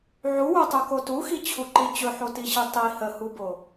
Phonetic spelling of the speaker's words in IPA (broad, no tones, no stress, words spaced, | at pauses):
ʕuwutˤuko tuxit͡ɕʰuǃi t͡ɕɵħotiɕi tˤi həhubo